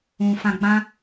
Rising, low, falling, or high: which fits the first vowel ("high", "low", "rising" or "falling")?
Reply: low